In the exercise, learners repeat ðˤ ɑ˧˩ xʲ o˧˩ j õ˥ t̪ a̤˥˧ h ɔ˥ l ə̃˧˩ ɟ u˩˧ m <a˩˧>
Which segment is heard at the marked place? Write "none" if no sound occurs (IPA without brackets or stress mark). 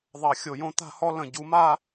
a˥˧